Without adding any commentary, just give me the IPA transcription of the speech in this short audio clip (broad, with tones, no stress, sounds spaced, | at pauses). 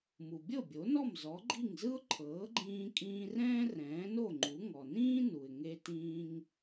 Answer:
m u˩ bʲ ɤ˥˩ bʲ o˩˥ n ɔ˥˩ m z ɔ˩˥ ɡ͡ǃ i˥˩ ŋ z ɯ˥ ʊ̯ ǃʰ ɤː˩˥ ɡ͡ǃ ĩː˧ kʼ ĩː˧ r ɛ̃ː˥ r ɛ̃ː˩˥ n o˥˩ ŋ͡ǃ u˩˥ ŋ ɔ˩ n ĩː˥ n u˩ ɪ̯ ŋ e˧ t ĩː˧ ŋ